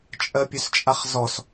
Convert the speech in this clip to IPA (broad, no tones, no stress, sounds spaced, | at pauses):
t͡ʃʼ ɜ pʲ ø s t͡ʃʼ a χ z ɔ s